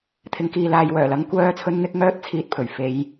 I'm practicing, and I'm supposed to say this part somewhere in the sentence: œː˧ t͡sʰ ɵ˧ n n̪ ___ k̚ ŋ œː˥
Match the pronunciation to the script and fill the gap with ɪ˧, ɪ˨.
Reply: ɪ˧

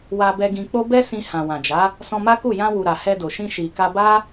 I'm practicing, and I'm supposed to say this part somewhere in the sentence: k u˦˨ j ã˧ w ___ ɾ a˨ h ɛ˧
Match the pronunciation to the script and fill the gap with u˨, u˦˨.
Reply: u˨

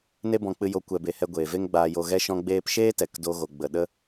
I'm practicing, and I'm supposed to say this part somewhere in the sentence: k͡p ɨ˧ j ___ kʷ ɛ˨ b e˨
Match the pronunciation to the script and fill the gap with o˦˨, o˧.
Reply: o˧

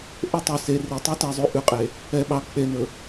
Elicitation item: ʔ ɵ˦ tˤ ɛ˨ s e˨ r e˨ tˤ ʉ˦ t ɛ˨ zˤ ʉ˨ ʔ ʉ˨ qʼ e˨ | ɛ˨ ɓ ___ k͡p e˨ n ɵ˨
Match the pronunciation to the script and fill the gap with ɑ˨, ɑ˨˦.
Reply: ɑ˨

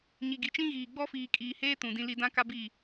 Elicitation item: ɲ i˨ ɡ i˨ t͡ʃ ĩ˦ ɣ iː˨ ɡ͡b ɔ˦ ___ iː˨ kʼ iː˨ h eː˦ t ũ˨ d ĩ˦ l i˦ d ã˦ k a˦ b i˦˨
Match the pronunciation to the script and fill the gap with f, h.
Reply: f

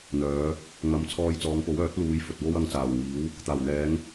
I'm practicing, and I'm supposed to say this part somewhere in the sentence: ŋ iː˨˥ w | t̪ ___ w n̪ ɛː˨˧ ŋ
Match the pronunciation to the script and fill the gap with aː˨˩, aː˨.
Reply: aː˨˩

